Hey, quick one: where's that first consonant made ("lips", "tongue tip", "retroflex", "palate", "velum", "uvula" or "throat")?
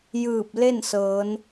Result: palate